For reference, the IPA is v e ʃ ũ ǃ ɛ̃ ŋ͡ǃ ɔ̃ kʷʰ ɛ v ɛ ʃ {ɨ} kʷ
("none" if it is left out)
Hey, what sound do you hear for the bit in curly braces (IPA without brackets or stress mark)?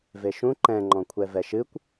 ɨ